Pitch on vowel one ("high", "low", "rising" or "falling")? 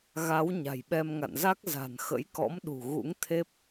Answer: rising